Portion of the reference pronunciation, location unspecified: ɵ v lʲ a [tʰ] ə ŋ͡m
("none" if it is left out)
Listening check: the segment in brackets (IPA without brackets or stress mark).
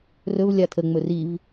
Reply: tʰ